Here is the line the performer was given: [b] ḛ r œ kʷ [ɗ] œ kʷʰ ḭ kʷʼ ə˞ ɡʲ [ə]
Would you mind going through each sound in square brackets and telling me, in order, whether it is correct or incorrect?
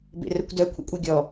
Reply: correct, incorrect, incorrect

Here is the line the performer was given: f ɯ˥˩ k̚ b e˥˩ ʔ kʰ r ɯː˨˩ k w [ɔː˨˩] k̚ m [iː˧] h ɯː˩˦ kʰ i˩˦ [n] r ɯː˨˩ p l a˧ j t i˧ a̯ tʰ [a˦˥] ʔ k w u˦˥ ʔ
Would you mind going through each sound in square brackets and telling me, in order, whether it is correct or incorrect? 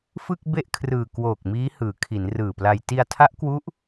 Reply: incorrect, incorrect, correct, correct

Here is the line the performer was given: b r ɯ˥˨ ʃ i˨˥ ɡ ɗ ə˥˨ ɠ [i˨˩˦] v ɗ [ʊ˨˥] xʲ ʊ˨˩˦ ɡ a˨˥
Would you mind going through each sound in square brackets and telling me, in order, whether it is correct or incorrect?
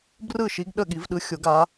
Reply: correct, incorrect

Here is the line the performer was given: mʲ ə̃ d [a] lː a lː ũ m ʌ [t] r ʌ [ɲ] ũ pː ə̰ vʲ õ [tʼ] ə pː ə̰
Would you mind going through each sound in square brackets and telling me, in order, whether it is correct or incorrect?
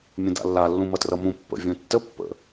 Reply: incorrect, correct, incorrect, incorrect

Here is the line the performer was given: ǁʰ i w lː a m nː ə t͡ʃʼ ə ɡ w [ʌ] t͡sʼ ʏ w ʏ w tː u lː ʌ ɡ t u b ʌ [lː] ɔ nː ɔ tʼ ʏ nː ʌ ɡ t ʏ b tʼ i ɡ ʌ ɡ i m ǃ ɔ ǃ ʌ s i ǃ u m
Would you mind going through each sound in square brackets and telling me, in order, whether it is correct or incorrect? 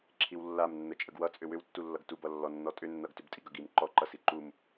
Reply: correct, correct

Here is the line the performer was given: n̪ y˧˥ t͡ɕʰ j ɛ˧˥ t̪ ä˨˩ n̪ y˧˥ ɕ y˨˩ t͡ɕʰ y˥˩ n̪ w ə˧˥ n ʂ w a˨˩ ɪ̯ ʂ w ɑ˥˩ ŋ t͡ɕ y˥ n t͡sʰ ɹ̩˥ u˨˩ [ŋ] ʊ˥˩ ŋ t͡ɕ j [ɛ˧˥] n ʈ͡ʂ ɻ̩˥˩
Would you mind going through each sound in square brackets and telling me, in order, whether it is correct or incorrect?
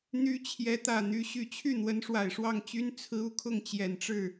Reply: incorrect, incorrect

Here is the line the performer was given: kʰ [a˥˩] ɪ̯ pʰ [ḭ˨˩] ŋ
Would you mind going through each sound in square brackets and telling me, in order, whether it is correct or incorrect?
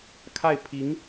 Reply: correct, incorrect

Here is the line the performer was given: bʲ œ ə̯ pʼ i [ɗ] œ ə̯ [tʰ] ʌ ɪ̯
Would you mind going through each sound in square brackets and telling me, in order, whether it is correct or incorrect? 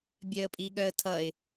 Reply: incorrect, correct

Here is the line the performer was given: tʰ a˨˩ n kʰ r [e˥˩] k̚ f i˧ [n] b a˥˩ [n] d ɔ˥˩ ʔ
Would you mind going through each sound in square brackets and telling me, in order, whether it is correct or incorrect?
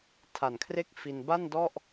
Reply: correct, correct, correct

